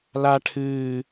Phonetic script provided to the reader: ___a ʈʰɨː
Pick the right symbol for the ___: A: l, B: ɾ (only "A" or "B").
A